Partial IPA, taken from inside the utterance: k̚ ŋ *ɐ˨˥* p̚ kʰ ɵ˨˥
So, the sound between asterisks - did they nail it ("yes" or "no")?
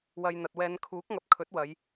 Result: yes